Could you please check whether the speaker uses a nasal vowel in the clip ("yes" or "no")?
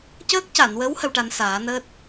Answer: no